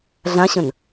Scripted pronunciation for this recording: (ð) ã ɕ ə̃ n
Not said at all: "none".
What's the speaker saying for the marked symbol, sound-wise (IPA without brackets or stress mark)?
ɮ